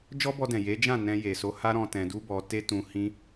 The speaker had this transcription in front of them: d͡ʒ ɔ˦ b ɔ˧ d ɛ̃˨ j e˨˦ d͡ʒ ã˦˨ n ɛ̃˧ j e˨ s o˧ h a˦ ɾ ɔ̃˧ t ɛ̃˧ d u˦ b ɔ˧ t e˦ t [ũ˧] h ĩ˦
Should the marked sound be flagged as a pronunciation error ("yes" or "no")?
no